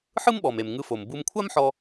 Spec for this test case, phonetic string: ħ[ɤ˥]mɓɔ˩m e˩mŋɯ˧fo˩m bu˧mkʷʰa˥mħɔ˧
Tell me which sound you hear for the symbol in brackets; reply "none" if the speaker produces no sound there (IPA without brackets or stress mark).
ɯ˥